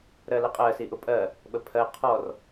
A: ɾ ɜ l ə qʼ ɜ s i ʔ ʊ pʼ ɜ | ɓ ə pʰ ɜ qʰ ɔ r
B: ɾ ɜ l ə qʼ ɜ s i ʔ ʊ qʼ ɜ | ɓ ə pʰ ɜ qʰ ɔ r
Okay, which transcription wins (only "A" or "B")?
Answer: A